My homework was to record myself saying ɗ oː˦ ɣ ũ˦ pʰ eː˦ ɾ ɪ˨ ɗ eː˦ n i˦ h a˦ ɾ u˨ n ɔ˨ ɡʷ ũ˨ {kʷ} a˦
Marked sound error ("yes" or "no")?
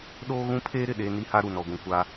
no